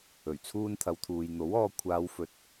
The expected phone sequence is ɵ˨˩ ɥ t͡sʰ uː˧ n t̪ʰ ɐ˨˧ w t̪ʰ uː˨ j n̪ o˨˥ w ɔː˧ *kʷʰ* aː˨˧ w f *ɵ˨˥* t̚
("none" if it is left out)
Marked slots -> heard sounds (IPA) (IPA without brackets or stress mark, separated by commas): kʷʰ, ɵ˨˥